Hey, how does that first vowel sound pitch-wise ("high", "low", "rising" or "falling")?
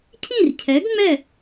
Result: falling